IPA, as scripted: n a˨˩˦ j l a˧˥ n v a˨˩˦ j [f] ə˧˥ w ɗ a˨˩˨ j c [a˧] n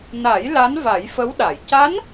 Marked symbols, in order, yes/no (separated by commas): yes, no